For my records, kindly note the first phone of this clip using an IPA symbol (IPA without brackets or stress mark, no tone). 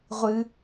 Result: ʁʷ